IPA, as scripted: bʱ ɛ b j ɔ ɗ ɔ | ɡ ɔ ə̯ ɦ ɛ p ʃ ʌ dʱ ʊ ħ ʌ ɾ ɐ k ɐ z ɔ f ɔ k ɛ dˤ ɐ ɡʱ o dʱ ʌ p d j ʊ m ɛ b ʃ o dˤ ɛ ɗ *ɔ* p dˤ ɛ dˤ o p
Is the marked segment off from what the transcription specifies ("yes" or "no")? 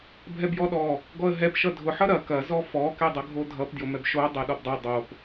no